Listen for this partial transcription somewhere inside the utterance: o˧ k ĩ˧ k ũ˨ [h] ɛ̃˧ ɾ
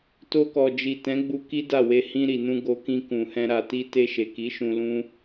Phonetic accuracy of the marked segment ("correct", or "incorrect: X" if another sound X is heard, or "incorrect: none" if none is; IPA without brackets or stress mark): correct